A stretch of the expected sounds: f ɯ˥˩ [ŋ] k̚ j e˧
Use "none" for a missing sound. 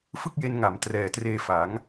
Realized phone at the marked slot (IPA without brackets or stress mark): none